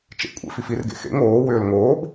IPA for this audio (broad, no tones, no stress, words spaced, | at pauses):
t͡ʃḛkʷʼḛ fifirɡḛ xḛŋ oːwʏːl ŋoːb